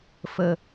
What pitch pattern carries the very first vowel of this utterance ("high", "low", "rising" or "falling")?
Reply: low